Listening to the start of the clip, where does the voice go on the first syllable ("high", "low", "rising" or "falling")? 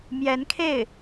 rising